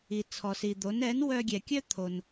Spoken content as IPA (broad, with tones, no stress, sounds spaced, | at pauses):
i˩ t͡sʰ ɔ˩ s i˩ d̪ o˩˥ n ɛ˩˥ n w œ˧ ɡʲ ɛ˩ kʲ œ˥ t̪ʰ o˩ n